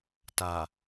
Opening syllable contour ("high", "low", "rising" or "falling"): low